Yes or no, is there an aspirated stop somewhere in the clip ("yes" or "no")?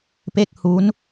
no